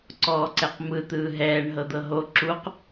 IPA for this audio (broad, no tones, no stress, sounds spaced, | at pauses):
ǀ ɔː ǀ ɛ q m ɯ t̪ ɯː ɦ ɛː ɳ ɦ ɤ d̪ ɤ ɦ o ǁ u q